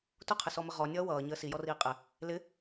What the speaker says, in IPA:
t ʊ qʰ ɪ s ɔ m ə ʁ ɔ nʲ ʌː w ʌː ɲ əː s i j ɔ r iː qʼ ɪ | l ɪ

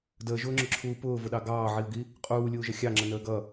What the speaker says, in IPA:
d əː ʒ ʊː ŋ͡ǁ ʊ ǁʰ uː p ʊː v ʊ ɗ ɑ ɡ ɑː ʕ i ʊ̯ ɡ i | qʼ uː lʲ uː ʒ ʌ xʲ ɑ ŋ͡ǁ ə n əː ɡ ʌ

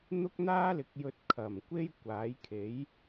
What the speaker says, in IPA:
n̪ ʊ˥ k̚ n̪ aː˥ l ɪ˨˥ k̚ j ɵ˧ t̚ kʰ ɐ˨˩ m kʷ e˥ j kʷ aː˨˥ j kʰ e˨˥ j

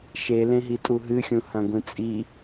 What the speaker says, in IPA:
ʃ e l ẽ ɦ i tʼ u ɦ ɨ xʲ ũ h ɐ̃ ɡʷ ĩ t͡sʼ i

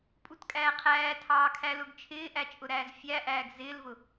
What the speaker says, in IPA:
pʼ u t kʼ æː qʰ æː tʰ ɑː kʰ æ l ʊ ɡ t͡ʃʰ ɪː ʔ æ t͡ʃʼ ʊ ɾ æː z fʲ æ ʔ æː ɡ z ɪː l v ʊ

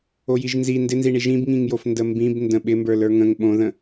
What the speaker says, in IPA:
o j i ʒ n z i n d ɪ n z i ɳ i ʒ ĩ b ŋ ĩ ŋ j o f n d ə m b ĩ b n d ə̃ ɓ ɪ m b ə˞ l ə˞ ŋ ə̃ ŋ ɓ õ ð ə̃

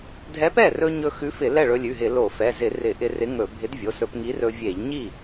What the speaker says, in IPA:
dʱ ɛ˨˥ p ɛ˥˩ r ɵ˧ ɲ ɵ˧ x ʉ˨˥ f ɪ˧˩˧ l ɛ˥˩ ɭ ɵ˧ lʲ ʉ˩˧˩ ɦ ɪ˧˩˧ l o˧˩˧ f ɛ˩˧˩ z ɪ˧˩˧ r ɪ˧˩˧ ʔ ɪ˧ r ɪ˨˥ ŋ ɵ˧˩˧ bʱ ɪ˨˥ d vʲ o˩˧˩ s ɵ˧˩˧ p ŋ i˨˥ r ɵ˧ vʲ e˧˩˧ ʎ ɲ i˥˩

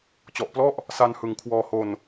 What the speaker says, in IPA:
t͡ɕ ɔ˨˩ ʔ p l ɔ˥˩ ʔ | s a˧ n h ɯ˨˩ ŋ kʰ w ɔː˧ h o˧ n

